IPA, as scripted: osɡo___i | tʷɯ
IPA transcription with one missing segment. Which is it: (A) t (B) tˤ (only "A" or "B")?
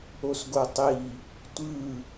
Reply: B